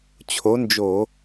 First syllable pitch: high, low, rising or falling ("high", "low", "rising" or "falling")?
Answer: rising